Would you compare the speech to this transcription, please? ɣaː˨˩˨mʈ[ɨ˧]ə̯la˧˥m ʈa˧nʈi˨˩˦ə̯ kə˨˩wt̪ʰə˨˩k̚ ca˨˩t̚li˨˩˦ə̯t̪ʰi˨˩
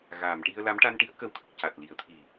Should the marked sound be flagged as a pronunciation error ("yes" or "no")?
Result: yes